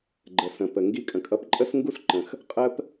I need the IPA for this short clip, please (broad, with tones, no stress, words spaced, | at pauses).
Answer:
ɡ͡ǃə˩sə̃˩pə˩ ŋɡi˨kʼə̃˩kʼʌ˨p ǃʼə˥s ŋɡu˦sǃə̃˩x | qʼə˦p